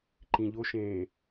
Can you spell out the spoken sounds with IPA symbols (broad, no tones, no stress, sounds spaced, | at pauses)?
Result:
ǃ ĩ ʎ o ʃ ẽː